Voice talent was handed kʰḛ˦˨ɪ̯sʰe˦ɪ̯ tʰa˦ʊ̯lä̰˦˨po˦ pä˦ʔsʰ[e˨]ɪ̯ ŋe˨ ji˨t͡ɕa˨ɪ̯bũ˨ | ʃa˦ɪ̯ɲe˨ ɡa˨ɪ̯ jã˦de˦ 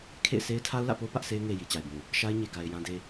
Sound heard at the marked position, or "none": e˦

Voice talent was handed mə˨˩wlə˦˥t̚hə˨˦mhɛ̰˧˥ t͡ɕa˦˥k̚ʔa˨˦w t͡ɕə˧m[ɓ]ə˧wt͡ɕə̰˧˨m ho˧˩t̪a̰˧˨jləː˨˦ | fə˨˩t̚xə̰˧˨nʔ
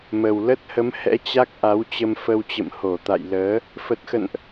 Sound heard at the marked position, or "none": f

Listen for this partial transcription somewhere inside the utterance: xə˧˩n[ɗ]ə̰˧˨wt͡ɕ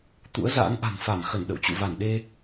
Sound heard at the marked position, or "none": ɗ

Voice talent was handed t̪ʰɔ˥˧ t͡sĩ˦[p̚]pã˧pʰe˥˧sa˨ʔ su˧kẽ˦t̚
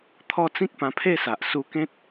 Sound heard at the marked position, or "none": k̚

